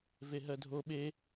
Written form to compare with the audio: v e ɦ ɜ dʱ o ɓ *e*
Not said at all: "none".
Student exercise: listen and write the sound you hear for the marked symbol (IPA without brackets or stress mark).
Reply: e